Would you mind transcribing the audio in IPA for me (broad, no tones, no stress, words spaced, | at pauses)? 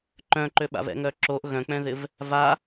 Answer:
ǃœ̃ǃøɓa̰v ɛ̰ŋœǁoʔ ɣœ̃k͡pɛ̃ðɪv | va